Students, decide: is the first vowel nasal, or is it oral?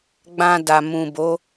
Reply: nasal